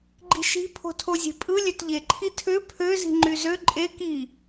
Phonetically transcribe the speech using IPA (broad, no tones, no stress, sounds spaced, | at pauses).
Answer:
ɡ͡ǃ i̤ ʃ i̤ pʰ o̤ tʰ o zʲ e̤ pʼ ɯ lʲ ø t ʎ e ǃʰ i tʰ ø pʰ ø z i̤ ŋ͡ǃ y z ø ǃʼ e k i